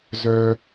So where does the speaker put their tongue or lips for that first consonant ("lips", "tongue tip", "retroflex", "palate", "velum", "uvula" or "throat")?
tongue tip